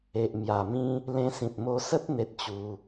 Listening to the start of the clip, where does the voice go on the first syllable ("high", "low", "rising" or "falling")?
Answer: low